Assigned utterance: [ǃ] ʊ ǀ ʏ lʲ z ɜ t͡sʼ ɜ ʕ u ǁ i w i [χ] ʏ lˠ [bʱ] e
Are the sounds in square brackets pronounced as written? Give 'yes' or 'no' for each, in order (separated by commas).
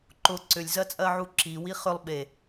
yes, yes, no